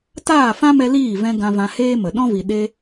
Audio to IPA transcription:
taː˦˨fã˦mɛ˧ liː˦˨ vɛ̃˧ ɡã˧vã˧heː˦mə˨ ɗɔ̃˦vi˨ ɗe˧

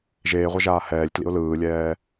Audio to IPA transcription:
ʒeːʁʷʌʒaː hɛːlʲtlḭʊ̯ lɯːlʲɛː

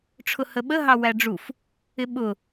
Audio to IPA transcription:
ʈ͡ʂʰʊhəɓə ɦɑwæɖ͡ʐuf | ɪɓʊ

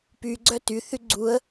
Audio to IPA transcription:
py ɡ͡ǀœty θyɡ͡ǀuə̯

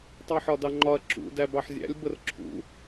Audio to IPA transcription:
tˤɜħɒdɑŋ͡ǃɒɐ̯ ǁṵ dæbɑħzʲæ̰lʲ bərǁʰṵ

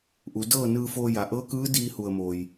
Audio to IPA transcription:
ʔu˩˧dɤː˥˨nɯː˧foː˧ ja˩ʔɤː˧˥kɯː˧˥ diː˧ hu˧˩ə̯moː˩j

